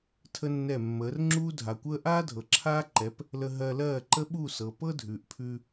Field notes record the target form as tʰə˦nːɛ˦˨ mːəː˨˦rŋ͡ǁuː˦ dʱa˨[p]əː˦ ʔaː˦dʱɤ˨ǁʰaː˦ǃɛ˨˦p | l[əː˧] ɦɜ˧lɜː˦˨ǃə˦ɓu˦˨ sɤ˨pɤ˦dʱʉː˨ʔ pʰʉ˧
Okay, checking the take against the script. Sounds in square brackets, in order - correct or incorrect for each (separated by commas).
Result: incorrect, incorrect